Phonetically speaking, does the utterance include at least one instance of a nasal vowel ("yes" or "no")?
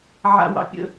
no